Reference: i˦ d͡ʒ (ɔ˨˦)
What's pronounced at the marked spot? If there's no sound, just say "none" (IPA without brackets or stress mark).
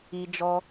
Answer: ɔ˦